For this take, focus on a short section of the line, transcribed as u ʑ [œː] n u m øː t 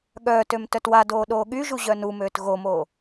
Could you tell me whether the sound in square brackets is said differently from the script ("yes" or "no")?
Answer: yes